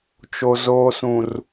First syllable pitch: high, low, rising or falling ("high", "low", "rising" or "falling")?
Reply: low